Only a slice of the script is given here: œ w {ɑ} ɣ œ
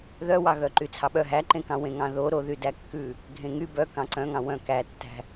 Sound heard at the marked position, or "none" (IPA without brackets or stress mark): ɑ